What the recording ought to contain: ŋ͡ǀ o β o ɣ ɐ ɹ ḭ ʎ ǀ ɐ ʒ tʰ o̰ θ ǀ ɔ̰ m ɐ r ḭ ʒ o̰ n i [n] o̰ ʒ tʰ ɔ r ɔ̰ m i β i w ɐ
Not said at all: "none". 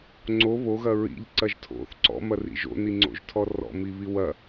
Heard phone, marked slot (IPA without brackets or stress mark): ŋ͡ǀ